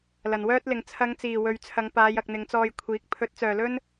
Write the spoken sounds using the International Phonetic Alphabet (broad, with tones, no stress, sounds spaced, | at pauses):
l ɐ˨˩ n w œː˥ t̚ l ɪ˨ ŋ t͡sʰ ɐ˨˧ ŋ t͡s iː˨˩ w ɵ˨ ɥ t͡sʰ ɐ˨˧ ŋ p aː˨˧ j ɐ˨ k̚ n̪ ɪ˨˧ ŋ t͡s ɔː˧ j kʷʰ iː˨˥ k̚ pʰ ɵ˨˥ t̚ t͡s œː˨˩ l ɵ˥ n